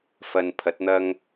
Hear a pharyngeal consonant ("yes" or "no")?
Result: no